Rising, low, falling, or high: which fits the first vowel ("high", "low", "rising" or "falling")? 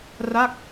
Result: falling